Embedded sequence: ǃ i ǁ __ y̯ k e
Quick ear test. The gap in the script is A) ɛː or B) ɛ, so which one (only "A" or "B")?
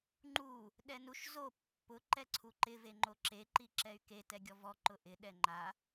B